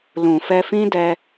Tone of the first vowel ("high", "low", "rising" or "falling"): low